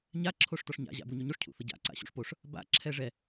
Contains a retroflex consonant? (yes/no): yes